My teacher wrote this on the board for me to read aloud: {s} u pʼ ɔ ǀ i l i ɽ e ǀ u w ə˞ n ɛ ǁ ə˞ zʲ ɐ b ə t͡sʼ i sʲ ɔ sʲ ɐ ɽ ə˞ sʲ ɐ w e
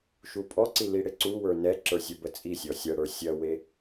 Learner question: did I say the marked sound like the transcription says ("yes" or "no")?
no